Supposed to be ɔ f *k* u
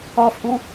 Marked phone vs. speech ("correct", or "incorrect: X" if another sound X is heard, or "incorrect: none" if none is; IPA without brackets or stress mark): incorrect: ʔ